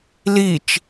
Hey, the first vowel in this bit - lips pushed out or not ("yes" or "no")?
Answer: no